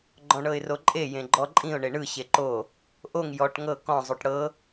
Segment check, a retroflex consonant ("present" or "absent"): present